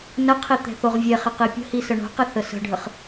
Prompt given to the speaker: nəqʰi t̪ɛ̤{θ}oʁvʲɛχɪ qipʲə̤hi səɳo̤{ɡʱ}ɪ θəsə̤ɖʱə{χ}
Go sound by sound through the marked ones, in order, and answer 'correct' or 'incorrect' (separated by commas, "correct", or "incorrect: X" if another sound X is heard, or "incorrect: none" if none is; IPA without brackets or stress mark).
correct, incorrect: q, correct